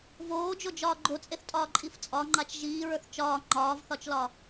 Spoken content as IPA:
voːd͡ʒod͡ʒɒː ɡ͡ǃot͡sʼeθtʼɒːǃʼif t͡sʼɒŋ͡ǃat͡ʃ ʒiːɹə˞θ t͡ʃɒː ŋ͡ǃɒːvθɒt͡ʃlɒ

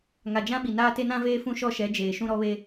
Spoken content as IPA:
ŋa˨d͡ʒã˦ɓi˨naː˦ te˦nã˦veː˦ fũ˦ʃɔ˦ʃɛ˨˦ d͡ʒeː˨ʃũ˦ɾɔ˦ βe˦

